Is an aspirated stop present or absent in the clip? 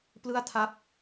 present